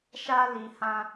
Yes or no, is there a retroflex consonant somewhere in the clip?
no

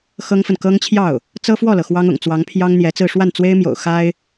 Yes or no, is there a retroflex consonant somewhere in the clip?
yes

